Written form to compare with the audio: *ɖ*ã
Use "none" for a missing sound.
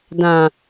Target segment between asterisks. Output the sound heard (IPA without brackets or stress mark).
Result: d